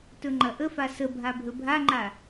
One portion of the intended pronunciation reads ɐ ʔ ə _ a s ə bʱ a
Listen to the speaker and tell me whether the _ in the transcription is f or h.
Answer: f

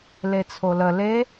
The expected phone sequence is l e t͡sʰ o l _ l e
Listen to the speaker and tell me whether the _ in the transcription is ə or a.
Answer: ə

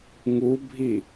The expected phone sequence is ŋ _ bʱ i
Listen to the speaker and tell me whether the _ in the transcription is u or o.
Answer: u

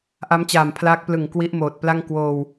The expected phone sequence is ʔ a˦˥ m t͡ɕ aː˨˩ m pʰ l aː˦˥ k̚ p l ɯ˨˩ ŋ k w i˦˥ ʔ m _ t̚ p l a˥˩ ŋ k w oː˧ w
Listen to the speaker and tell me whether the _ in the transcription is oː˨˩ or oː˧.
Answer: oː˨˩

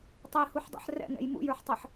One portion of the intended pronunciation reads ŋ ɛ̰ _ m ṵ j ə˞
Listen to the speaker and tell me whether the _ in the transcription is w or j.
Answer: j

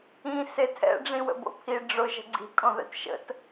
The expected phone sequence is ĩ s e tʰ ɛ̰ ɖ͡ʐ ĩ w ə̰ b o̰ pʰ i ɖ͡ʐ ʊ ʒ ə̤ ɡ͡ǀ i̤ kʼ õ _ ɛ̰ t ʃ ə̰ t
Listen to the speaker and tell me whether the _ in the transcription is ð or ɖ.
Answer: ð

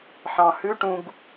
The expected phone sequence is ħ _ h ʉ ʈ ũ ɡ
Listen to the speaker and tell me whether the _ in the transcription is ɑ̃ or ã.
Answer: ɑ̃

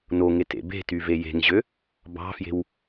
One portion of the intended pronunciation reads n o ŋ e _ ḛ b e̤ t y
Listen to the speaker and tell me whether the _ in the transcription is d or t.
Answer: t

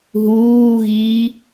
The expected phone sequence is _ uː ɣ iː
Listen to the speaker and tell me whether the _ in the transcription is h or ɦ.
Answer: ɦ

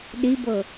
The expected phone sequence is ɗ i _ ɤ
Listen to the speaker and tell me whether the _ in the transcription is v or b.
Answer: b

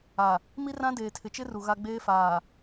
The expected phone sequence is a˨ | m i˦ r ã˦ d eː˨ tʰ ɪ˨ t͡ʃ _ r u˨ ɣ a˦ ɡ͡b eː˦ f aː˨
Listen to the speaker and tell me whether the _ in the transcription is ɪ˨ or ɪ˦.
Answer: ɪ˦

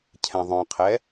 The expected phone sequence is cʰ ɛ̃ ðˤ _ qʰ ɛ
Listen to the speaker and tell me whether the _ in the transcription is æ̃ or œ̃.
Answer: œ̃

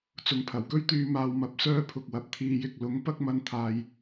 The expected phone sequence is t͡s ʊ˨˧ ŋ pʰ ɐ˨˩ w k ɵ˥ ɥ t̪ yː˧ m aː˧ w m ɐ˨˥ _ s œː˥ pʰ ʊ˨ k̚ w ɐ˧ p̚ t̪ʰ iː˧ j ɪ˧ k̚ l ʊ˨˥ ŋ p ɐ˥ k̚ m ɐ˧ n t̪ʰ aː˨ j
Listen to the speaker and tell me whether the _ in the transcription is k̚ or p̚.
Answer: p̚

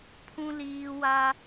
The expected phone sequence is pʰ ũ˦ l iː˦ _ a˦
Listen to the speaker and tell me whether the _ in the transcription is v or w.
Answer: w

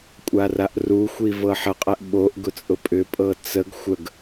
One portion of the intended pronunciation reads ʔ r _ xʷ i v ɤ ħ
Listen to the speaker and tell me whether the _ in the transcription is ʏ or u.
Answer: u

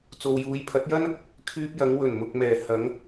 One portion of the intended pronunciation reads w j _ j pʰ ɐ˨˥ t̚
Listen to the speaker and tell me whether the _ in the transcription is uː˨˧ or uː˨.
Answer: uː˨˧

